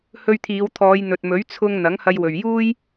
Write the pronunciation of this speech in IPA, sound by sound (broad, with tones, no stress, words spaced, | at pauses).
hɵ˧ɥt̪ʰiː˨˧wt̪ʰɔː˨˧j n̪ɵ˨t̚mɵ˨˥ɥ t͡sʰʊ˧ŋ n̪ɐ˨˥ŋhɐ˧jwɵ˨ɥjuː˥j